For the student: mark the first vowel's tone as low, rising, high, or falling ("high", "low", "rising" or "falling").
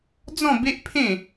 falling